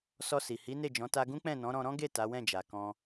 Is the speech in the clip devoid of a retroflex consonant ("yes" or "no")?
yes